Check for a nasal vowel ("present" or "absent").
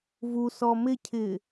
absent